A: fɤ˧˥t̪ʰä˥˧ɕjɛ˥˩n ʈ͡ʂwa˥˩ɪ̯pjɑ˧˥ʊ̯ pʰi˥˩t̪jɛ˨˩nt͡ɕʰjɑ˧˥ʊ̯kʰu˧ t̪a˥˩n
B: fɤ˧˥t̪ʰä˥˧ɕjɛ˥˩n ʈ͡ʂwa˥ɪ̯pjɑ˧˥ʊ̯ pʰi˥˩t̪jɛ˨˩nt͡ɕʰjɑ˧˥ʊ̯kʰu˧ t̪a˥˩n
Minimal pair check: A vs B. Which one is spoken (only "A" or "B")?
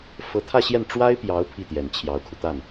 B